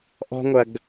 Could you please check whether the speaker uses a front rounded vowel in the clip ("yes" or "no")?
no